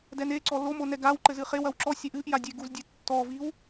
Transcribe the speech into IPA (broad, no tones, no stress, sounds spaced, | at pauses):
d ɛ n e ǀ ɔ l o m o n ɛ ɡ a w ǃ ɘ z ɨ χ e w ɐ w ǁ ɔ sʲ ɛ ʔ ɨ ʔ j a dʲ e ɡ u z dʲ e tː ɔ v i w